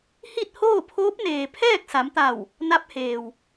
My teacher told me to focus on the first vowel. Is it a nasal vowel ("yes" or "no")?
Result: no